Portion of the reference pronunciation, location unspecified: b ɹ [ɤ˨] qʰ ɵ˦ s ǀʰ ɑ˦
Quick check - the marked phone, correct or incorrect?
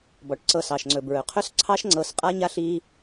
incorrect